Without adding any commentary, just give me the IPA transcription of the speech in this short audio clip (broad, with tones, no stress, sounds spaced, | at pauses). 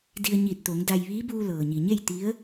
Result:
d i˧ ə̯ ɲ iː˧˩ t̚ t̪ o˩˧ ŋ d a˧ j ʋ iː˧˥ b uː˧ l ɤː˩ ɲ i˩ ɲ e˥˨ j t̪ i˧˥ ə̯